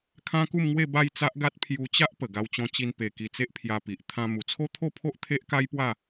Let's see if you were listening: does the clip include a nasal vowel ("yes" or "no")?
yes